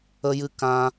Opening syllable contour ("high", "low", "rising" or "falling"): high